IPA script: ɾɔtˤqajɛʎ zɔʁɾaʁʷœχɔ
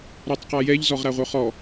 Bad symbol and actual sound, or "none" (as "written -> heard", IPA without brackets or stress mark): none